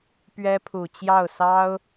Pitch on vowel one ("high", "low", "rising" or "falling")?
high